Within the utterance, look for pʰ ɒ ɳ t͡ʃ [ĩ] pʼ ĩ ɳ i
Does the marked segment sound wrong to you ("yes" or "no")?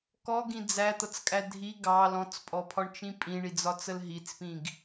no